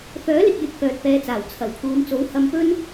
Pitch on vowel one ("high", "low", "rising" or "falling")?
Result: rising